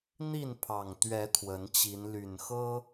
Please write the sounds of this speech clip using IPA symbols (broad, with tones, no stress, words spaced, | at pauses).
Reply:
n̪i˥˨npʰɑ˨˩ŋt̪ɥɛ˨˦ t̪ʰwə˨˦nt͡ɕi˨˦n ly˨˩n xɤ˦